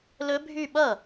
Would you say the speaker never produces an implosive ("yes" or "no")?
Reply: no